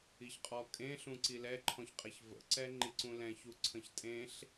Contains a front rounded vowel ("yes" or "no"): no